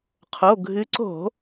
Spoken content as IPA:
qʰ o˩˧˩ ɡʱ ɨ˨˦ ǀ o̤˧˩˧

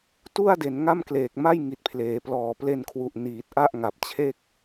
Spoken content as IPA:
t u˥˩ a̯ d e˩˦ n ŋ a˥˩ m k l eː˨˩ k̚ m a˥˩ j ŋ i˨˩ t̚ pʰ l eː˩˦ p l ɔː˨˩ p l e˧ n kʰ w u˨˩ ʔ n iː˨˩ t̚ ʔ a˥˩ ʔ ŋ a˨˩ p̚ t͡ɕʰ e˥˩ k̚

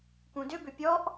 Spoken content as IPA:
k ũ d ʏ b ʏ pʲ ɔ ʔ

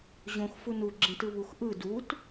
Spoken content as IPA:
ʑ õ x f u n u ɡ͡ǁ ẽ t ɯ β u x ʔ ɯ d u t

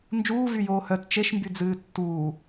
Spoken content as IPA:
n d͡ʒ uː v y j oː h œ t t͡ʃ e ʃ m b y d͡z ɨː tː uː

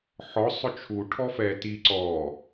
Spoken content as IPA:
ħ ɔ sˤ ʊ t͡ʃʰ u ʈʰ ɔ f ɛ t i ǀ ɔ

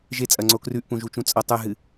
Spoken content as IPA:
ʒ e t͡sʼ ɐ ŋ͡ǀ o k r ʉ ʔ p ũ ʒ u t͡ʃ ũ t͡sʼ ɐ tˤ ʉ ɦ ɨ

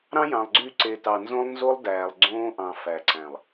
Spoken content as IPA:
ɾ ɑ̃˦ j ɑ̃˨ lˠ ɡ͡ǀ y˦˨ ǀ e˨ t ɑ˨ n z õ˦ lˠ n z o˦ lˠ d æː˨ lˠ ɡ͡ǀ õː˦ ʔ ɑ̃˨ f æ˨ ǀ æ̃˨ lˠ

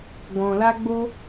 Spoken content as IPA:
ɡ ɔ̃˨ l a˧ ɡ͡b o˦

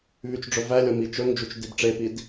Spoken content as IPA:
β y t͡ʃ ɖ͡ʐ ɵ v æ lʲ ɔ m i t͡ʃ ɵ ŋ d͡ʒ u t͡ʃ d i b ʈ͡ʂ e p i d

